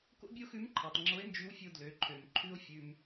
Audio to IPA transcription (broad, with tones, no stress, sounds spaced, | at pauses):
k o̰˥ bʲ o˥ x ʉ˧˥ m ǃʰ ɑ˩ tˤ ŋ͡ǁ o˧˥ e̯ n d͡ʒ y˧˥ w fʲ o˧ d l ø˩˧ ǃʰ ø˩ m ǃʰ ʉ˥ o̯ fʲ ʉ˧ m